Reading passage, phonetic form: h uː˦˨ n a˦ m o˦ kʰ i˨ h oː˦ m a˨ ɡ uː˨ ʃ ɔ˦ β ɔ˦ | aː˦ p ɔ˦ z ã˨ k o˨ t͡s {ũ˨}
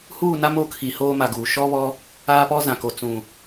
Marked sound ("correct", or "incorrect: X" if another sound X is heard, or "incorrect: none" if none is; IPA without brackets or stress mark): correct